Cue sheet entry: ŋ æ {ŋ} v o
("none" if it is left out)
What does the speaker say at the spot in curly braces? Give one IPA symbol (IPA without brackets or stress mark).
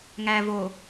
none